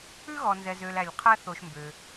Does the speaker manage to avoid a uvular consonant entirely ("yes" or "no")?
no